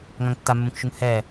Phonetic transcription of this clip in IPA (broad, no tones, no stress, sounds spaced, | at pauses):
ŋ ã ŋ tː a mː ũ k ʃ u ŋ h ɛ